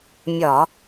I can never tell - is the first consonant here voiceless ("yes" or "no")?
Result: no